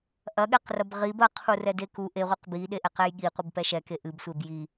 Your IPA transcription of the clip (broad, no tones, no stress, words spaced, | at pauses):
ʔɐɠɛqrɐb ʁib ɐqʰurɛde ku ʔeʁʷiq biɗeʔɛqɛj ɠiqʷɨbpɛ ʃɛke ʔɨbsʷeb ji